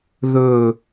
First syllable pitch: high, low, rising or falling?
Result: falling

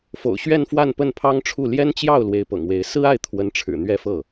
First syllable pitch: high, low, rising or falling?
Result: low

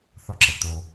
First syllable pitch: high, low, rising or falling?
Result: high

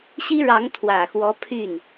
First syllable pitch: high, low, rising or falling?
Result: high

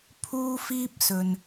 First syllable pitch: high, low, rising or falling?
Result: high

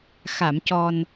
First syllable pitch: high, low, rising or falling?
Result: low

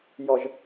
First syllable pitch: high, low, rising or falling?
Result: low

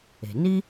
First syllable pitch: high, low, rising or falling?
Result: low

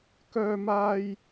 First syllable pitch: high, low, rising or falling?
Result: high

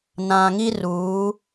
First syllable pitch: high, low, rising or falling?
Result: low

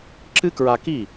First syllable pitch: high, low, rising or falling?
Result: high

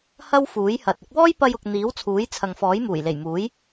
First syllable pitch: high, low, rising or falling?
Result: high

